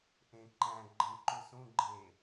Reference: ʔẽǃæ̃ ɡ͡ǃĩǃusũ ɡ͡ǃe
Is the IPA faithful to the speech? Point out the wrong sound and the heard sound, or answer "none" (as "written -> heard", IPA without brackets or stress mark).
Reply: ĩ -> ẽ